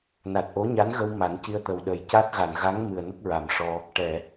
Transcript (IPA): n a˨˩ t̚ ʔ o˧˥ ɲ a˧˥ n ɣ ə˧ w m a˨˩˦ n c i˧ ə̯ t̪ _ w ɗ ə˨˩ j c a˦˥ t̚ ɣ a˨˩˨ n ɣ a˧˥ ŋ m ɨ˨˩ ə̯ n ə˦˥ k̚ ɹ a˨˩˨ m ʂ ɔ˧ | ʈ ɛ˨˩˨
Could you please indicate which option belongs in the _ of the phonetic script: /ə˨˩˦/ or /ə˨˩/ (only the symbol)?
ə˨˩